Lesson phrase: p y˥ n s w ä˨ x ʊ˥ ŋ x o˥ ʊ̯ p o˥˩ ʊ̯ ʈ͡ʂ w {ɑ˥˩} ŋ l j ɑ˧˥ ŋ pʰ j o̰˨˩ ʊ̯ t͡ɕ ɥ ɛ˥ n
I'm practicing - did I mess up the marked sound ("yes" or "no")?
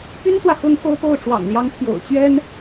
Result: yes